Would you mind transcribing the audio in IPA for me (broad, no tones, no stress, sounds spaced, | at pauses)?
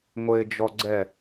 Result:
ŋʷ ɘ ɪ̯ d͡ʒ ɔ ɡ͡ǀ ɛ